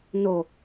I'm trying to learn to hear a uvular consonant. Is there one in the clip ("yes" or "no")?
no